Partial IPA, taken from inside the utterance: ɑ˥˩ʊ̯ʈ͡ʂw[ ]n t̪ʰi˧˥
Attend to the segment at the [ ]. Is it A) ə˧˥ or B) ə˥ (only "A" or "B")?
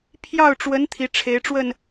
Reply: A